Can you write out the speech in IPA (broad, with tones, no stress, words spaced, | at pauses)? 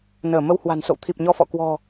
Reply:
nəː˧˩ mə˧whwa̤˨˩nso̰˧˨w t̪ʰi˨˩p̚ɲɔ˧fɔ̰˧˨ kwɔ̤˨˩